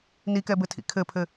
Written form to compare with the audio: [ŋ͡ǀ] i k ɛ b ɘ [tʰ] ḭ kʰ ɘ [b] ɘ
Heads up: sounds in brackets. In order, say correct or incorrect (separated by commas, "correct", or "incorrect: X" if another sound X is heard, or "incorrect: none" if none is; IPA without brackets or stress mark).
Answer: incorrect: n, correct, incorrect: pʰ